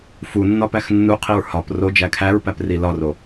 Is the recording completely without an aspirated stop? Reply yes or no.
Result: no